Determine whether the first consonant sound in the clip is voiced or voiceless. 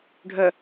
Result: voiced